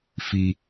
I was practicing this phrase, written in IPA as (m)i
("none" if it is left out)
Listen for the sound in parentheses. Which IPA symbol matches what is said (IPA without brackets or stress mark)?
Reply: f